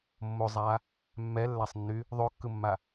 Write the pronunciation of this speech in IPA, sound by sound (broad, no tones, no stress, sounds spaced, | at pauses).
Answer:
mː o zˤ a | mː ɛ lː a sˤ nː y | ðˤ o kː ɯ mː a